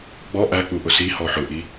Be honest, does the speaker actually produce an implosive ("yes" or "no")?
no